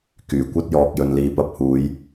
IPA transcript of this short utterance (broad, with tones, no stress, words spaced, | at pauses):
kyː˨˩kʷɐ˧t̚jɔː˨k̚ jɵ˨nliː˨˧pɐ˧p̚ huː˨˧j